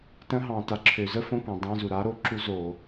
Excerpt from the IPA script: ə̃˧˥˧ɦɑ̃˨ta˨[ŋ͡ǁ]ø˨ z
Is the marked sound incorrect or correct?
incorrect